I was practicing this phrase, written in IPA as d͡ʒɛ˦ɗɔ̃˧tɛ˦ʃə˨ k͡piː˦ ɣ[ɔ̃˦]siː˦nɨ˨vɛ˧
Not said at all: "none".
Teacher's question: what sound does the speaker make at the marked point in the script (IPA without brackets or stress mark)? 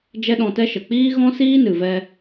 ɔ̃˦